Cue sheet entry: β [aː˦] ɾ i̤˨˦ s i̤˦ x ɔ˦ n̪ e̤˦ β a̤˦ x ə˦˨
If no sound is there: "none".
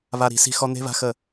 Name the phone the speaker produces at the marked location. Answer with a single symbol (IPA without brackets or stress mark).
a˦